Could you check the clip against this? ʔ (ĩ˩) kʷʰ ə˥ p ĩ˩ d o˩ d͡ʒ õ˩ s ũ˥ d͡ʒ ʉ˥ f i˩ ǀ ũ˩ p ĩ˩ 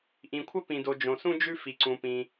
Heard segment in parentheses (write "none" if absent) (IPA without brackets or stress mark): ĩ˩